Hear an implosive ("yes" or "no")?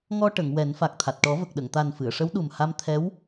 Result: yes